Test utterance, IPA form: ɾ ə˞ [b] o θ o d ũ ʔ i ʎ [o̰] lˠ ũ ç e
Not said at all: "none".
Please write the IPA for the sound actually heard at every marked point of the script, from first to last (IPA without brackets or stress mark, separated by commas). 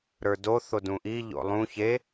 d, o̰